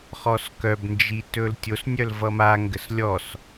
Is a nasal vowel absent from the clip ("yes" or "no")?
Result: yes